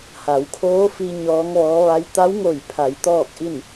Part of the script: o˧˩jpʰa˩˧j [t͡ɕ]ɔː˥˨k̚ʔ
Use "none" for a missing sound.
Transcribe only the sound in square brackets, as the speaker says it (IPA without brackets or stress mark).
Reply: t̪